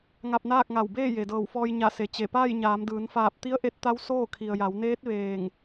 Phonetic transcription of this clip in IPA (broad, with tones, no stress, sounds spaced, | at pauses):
ŋ a˧ p̚ n aː˥˨ k̚ ŋ a˧˩ w b eː˥˨ j e˩ d ɤː˧˩ w f ɔː˧ j ɲ a˧˩ s e˩ t͡ɕ e˧˩ p aː˥˨ j ɲ aː˩˧ m d ɯː˩˧ n f aː˧˩ p̚ t̪ i˧˥ ə̯ ʔ e˧˥ t̚ t̪ a˧˥ w s oː˥˨ kʰ i˩ ə̯ j a˩˧ w n eː˧˥ t̚ ʋ eː˧˩ ŋ